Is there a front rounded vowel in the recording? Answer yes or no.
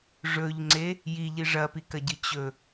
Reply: no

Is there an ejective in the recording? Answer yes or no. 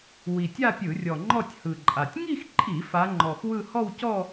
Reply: yes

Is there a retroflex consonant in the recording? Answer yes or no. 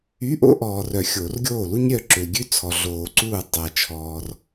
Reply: no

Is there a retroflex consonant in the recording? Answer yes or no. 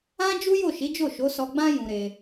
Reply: no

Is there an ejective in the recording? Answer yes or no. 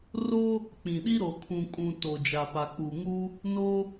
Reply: yes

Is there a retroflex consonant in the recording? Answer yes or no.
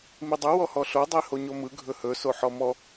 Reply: no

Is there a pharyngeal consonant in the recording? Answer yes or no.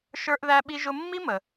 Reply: no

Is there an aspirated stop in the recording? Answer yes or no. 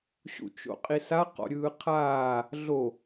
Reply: yes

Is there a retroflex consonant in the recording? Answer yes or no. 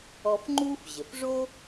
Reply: yes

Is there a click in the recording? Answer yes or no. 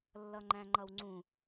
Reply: yes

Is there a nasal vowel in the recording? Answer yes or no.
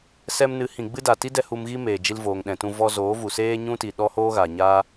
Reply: yes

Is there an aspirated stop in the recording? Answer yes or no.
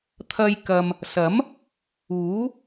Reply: yes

